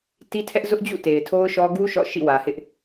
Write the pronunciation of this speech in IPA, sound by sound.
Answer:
ti˦tʰɛ˦ʔ zʊ˦ʔd͡ʑṵ˦˨ te˨ɪ̯tʰo˦ʊ̯ʃɔ˦ ɡu˦ ʃɔ̰˦˨ʃḭ˦˨wä˨hɪ˦ʔ

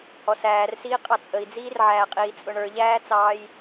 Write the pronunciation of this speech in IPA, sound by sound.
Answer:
hɔsæːrsiːqʼɑ t͡sʼəi̯d͡ziːrʕæːqʼiː t͡sʼʊɳə˞ʎæːt͡sɑːj

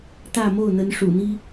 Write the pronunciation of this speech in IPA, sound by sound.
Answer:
t̪ä˥˧mo˥˩ʊ̯n̪ə˧˥n ʂṵ˨˩n̪i˥

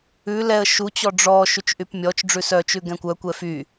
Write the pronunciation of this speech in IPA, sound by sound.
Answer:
ʉ lɛə̯ ʃut͡ɕɔ ɖ͡ʐɔ ʃyt͡ʃʔypmʲɔt͡ʃɖ͡ʐʉ sœt͡ʃʉ ɡɛ̃kʷœkʷɛ fy

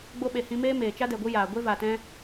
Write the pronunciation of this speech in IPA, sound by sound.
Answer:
ɡ͡bo˧ɓe˨ hĩ˧meː˦ meː˨ t͡ʃa˦dɛ˨ɡʷɨ˧ jaː˨ɡʷe˦ va˨tɛ̃˧

